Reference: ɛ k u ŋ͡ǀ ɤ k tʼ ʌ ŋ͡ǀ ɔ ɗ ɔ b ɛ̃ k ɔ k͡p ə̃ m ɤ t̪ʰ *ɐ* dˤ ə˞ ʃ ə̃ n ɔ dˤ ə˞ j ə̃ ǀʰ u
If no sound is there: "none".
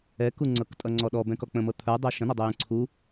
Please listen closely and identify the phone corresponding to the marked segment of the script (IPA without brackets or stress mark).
ə˞